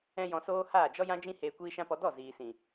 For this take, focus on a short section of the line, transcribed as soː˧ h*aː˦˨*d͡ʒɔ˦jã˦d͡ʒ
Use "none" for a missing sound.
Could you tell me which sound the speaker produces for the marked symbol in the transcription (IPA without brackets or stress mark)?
aː˦˨